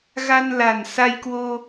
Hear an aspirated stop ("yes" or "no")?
no